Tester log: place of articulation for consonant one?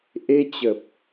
glottal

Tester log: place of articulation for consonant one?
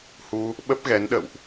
glottal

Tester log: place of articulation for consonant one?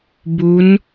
labial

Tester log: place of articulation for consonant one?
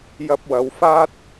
palatal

